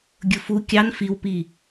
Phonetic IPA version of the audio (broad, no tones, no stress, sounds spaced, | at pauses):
ɡʲ ʊ f u kʲ ɑ n f i w p i